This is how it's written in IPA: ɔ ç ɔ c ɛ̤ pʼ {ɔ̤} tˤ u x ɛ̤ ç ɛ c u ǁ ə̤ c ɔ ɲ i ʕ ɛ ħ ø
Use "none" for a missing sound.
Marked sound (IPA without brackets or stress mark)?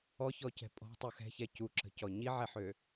ɔ̤